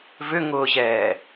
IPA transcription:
v ʏ ŋ ʊː ʑ ɛː

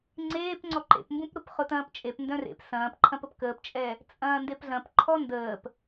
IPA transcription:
ŋ͡ǀ eː p ŋ͡ǀ ɔ ǃ ḛ p m b ũ p ɾ ʊ p χ ʊ t ɐ̃ː p t͡ʃʼ e p n d œ̃ r ḛ p s ɐ̃ː p ǃʰ ɐ̃ p ə p k əː p t͡ʃʼ ɛ | t͡sʼ ɐ̃ː n d e p ɮ ɐ̃ p ǃʰ ɔ n d əː p

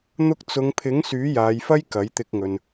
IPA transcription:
n̪ ʊ˧ k̚ t͡s ʊ˨˧ ŋ pʰ ɪ˨˥ ŋ s yː˨˥ j aː˨˧ j f ɐ˥ j k ɐ˨˥ j t̪ ɪ˧ k̚ ŋ ɵ˨ n

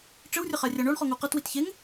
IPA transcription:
ʈ͡ʂ ɘ w rʲ ɐ χ a rʲ a ɳ o ɳ χ ɔ ŋ u q ɐ t w i t ç e ŋ

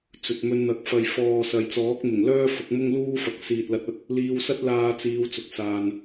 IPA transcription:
t͡s ɵ˨ t̚ m ɵ˧ n n̪ ɐ˨˥ k̚ f ɐ˨ j f ɔː˨ s ɐ˨ j t͡s ɔː˨˥ k̚ m ɪ˨˩ ŋ l œː˥ f ʊ˨˥ k̚ m ʊ˥ ŋ l uː˥ f ɐ˨˥ k̚ s iː˨ t̚ l ɐ˨˥ t̚ ɐ˨ t̚ | l iː˧ w s ɐ˥ t̚ l aː˧ t͡s iː˨˧ w t͡s ʊ˨˥ k̚ s aː˨ n

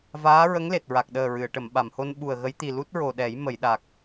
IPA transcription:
v aː˧˥ ɹ ə˧˥ ŋ l e˨˩ t̚ ɹ a˨˩ k̚ ɗ əː˨˩ ɹ ɨ˨˩˨ ə̯ ʈ ə˨˩˨ m ɓ a˨˩˨ m h o˧ n ɓ u˨˩ ə̯ ɣ ə˧˥ j t̪ i˨˩ l u˦˥ t̚ ɹ o˨˩ ɗ ɛ˨˩˦ j m ə˨˩˨ j ɗ a˨˩ k̚

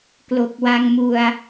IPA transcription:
k l o˨˩ k̚ w a˧ ŋ m u˧ a̯

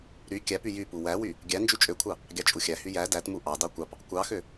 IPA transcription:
ɾ y kʲ æ p y j y p u w æ w y | ɡʲ æ n d͡ʒ y t͡ʃʼ ø kʷʰ ɑ | ɡʲ ɑ t͡ʃʼ u xʲ æ h y j æ d æ t m u ʔ ɑ d ɑ kʷ ɑ p | kʷ ɑ x ø

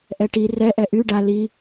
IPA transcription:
ʔ ɛ ʈ i r ɛ ʔ ɛ ʔ y ɖ a l i

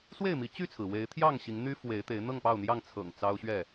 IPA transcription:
s w e˥˨ ɪ̯ m i˨˦ t͡ɕ y˥˨ t͡sʰ ɹ̩˩ w e˨˦ ɪ̯ t̪ʰ j ɑ˥˨ ŋ ɕ i˨˦ ŋ n̪ y˦ f w e˨˦ ɪ̯ t̪ e˨˦ ɪ̯ n̪ ɤ˥˨ ŋ p ɑ˥˨ ʊ̯ n̪ j ɑ˥˨ ŋ t͡sʰ ɤ̰˨˩ ŋ t͡s ɑ˦ ʊ̯ ɕ ɥ ɛ˥˨

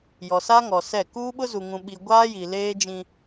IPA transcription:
j ɔ˨ s a˦ ŋ ɔ˨ s ɛ˦˨ k uː˦ ɓ ʊ˦ z u˨ ŋ ũ˨ ɓ i˨ ɡʷ aː˦ j i˨ l eː˦ d͡ʒ ĩ˦

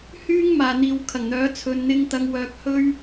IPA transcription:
h yː˥ ŋ m aː˨ n̪ iː˨ w kʰ ɐ˨˩ ŋ n̪ œː˨˥ t͡sʰ ɵ˨ n n̪ ɪ˧ ŋ t̪ ɐ˨ ŋ w œː˨ k̚ h ɵ˥ ɥ

